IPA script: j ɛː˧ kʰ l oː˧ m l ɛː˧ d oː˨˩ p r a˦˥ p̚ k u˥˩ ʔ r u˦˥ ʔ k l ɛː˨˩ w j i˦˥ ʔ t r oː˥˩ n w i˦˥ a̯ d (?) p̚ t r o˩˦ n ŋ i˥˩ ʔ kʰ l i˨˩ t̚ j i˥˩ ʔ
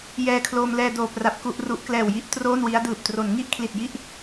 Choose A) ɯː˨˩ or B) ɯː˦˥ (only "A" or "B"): A